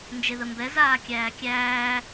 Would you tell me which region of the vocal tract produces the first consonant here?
tongue tip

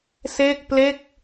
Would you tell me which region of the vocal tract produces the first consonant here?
tongue tip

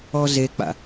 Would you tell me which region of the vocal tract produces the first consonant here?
tongue tip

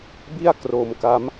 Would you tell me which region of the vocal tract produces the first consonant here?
lips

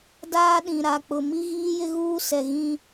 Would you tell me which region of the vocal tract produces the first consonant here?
tongue tip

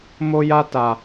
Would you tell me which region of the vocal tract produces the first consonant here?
lips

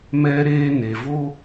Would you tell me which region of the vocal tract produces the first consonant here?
lips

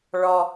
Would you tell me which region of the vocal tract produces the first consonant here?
retroflex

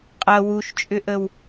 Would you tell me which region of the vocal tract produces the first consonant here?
uvula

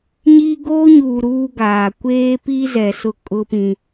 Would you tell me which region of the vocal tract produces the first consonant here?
palate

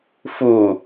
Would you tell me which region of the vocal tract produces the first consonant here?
lips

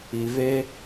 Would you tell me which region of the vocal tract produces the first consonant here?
lips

